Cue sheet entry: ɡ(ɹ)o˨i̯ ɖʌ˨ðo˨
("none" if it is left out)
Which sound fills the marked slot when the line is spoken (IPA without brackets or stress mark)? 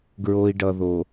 ɹ